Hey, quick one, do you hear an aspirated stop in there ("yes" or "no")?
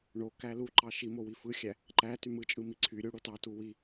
yes